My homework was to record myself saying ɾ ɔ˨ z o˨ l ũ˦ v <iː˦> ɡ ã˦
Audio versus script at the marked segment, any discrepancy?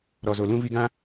yes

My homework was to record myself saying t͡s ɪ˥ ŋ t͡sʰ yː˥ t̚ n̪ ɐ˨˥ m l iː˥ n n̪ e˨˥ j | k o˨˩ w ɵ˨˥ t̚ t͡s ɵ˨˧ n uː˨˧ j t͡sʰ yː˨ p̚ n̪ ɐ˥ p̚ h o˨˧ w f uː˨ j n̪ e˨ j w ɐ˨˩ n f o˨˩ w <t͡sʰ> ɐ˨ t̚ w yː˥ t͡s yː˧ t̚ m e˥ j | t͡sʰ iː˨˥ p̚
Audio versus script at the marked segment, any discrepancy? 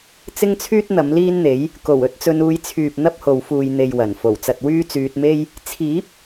yes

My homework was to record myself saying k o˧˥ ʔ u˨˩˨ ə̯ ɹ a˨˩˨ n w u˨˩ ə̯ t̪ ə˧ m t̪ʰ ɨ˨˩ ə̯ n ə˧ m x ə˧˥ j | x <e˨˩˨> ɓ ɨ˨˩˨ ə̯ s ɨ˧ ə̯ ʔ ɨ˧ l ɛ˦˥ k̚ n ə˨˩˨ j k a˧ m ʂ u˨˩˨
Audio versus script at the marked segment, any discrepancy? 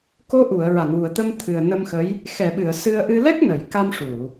yes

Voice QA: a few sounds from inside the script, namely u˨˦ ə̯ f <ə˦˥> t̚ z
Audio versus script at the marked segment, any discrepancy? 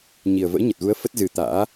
no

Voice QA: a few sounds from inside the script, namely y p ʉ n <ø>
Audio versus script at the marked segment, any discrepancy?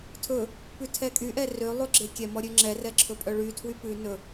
yes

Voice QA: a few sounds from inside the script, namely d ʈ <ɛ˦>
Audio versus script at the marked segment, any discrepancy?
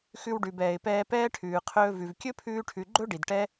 no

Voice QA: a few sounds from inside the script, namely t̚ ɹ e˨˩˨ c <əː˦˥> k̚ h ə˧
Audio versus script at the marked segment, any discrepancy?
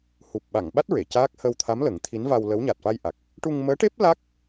yes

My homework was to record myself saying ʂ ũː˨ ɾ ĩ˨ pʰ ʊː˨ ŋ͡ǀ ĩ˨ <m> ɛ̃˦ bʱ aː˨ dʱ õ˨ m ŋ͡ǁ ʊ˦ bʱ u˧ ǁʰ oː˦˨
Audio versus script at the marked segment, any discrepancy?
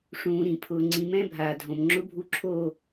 no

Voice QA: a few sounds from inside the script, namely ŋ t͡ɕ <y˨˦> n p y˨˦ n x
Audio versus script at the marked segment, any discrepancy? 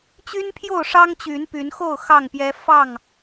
no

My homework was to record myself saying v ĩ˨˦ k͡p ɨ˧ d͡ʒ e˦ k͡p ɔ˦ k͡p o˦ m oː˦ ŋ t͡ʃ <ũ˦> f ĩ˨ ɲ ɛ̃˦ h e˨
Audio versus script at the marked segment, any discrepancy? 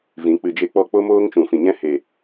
yes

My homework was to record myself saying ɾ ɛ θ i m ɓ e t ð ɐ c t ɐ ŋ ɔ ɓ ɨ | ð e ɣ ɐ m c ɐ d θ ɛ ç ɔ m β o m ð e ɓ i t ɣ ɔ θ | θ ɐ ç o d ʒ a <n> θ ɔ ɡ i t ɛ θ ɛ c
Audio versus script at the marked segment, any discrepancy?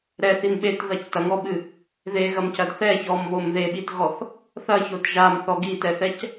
yes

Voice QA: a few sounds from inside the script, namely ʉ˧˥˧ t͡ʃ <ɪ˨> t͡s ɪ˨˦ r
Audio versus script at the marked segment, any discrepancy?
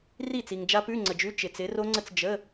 no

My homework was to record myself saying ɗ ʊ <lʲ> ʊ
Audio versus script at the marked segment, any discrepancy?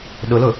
yes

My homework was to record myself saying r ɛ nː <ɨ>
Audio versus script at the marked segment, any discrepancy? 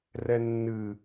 no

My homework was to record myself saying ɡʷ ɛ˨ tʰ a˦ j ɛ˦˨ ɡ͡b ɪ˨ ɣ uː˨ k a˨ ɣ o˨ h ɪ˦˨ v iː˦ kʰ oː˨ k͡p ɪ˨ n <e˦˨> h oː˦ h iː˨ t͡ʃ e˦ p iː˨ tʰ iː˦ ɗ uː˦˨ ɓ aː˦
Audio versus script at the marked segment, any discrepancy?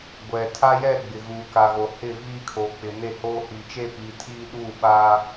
no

